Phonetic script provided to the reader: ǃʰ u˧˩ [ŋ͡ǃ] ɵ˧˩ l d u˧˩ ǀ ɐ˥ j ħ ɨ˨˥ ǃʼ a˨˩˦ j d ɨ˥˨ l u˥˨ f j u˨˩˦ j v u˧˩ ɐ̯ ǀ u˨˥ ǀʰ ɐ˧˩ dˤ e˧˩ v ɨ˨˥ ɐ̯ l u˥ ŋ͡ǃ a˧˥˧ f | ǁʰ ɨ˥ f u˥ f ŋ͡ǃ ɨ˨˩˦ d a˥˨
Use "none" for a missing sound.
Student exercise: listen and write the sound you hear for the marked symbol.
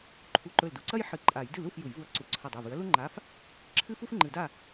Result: ǃ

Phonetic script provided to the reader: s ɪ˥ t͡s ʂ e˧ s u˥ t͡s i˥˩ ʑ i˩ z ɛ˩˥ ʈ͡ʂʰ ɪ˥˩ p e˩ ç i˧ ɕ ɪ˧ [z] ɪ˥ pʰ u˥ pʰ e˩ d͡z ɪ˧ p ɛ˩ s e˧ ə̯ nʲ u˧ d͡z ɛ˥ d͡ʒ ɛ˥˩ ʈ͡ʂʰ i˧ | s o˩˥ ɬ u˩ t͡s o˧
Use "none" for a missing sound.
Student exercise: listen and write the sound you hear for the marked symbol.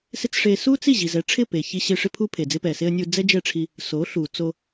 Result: ʂ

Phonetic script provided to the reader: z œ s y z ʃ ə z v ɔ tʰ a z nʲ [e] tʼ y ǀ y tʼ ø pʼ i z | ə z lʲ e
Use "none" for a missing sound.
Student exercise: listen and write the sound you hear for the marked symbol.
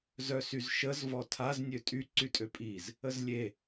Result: ø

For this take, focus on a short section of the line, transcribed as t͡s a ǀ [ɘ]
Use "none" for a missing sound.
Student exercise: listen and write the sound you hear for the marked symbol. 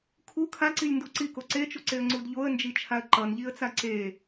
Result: e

